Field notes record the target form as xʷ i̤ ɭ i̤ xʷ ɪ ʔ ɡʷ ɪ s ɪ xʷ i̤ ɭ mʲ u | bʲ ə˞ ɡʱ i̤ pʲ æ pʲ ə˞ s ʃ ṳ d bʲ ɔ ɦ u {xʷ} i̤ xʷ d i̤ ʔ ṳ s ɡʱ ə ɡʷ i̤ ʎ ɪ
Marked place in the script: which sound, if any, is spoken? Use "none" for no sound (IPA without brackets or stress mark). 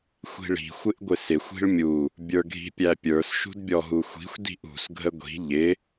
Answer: xʷ